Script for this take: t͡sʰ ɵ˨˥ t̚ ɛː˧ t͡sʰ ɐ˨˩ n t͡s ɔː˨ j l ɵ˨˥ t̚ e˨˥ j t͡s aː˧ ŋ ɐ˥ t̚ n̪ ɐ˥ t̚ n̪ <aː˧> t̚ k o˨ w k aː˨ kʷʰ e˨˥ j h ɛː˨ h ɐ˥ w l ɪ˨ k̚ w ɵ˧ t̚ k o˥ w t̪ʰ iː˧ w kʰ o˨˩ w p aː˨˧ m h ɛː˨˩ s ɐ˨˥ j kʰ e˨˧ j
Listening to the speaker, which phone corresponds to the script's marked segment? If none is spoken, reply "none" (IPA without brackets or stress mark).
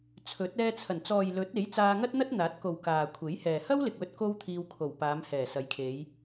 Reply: aː˨˥